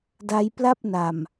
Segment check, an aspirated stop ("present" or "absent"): absent